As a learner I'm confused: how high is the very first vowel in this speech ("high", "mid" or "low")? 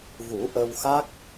high